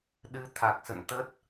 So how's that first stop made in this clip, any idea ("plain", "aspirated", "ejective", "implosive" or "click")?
implosive